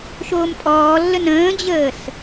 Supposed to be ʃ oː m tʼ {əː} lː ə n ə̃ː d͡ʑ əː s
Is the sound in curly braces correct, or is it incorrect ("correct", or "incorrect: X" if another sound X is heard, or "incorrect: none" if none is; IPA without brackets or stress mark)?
incorrect: ɔː